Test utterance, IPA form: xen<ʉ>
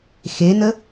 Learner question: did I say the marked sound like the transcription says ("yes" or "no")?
no